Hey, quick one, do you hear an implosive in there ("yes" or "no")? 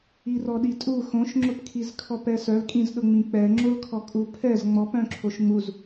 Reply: yes